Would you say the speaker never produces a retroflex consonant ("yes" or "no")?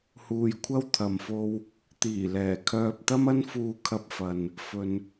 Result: yes